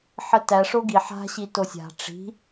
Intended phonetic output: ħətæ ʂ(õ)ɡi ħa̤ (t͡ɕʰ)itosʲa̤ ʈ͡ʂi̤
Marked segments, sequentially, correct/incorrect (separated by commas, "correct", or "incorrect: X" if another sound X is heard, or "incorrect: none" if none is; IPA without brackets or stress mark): incorrect: o, incorrect: ɕ